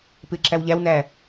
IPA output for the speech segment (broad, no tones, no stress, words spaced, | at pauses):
pɪːǁæwʎæwnæː